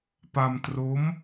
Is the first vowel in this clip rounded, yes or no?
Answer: no